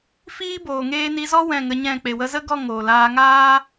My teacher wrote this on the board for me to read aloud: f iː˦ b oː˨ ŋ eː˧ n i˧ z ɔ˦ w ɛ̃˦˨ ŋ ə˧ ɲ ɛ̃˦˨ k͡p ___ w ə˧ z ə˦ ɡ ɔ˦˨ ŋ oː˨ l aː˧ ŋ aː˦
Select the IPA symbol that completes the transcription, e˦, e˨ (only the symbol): e˨